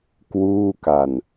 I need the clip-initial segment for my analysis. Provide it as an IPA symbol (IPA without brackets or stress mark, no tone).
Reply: k